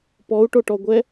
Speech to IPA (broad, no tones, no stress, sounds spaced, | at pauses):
p ɔ u̯ ʈ o ʈ ɔ ɡʷ ɛ